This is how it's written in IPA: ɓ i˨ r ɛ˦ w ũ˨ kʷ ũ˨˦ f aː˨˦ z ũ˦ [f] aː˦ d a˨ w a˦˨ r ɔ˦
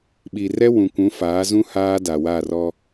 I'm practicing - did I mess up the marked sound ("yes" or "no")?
yes